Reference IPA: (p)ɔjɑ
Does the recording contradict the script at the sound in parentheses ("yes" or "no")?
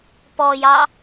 no